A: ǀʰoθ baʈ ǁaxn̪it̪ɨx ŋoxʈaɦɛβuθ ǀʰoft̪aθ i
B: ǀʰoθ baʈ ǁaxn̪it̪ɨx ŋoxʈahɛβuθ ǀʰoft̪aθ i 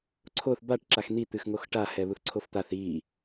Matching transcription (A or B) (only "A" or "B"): B